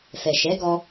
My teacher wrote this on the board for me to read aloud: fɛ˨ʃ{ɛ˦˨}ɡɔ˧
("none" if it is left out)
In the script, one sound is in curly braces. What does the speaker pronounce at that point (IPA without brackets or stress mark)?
ɛ˨˦